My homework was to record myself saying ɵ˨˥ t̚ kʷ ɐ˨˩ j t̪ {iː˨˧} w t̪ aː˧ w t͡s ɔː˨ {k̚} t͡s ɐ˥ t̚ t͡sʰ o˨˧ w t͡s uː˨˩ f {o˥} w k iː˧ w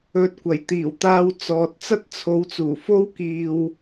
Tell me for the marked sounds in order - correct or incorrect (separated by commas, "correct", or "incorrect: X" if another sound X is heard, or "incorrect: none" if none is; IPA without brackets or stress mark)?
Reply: incorrect: iː˨˩, incorrect: t̚, correct